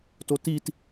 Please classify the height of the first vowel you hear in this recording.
mid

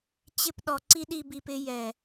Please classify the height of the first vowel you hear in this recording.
high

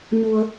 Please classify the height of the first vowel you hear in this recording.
high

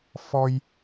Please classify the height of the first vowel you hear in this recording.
mid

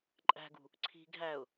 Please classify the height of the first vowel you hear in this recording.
low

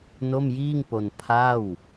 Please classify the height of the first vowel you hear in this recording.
mid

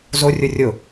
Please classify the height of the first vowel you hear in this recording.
mid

